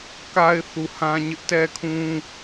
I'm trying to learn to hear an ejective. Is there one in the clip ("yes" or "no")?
no